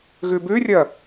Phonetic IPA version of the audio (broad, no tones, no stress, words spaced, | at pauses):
ɣʉbʉrʲɐ